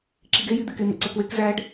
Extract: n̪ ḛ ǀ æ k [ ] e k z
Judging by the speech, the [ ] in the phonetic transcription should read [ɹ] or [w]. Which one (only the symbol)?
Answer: w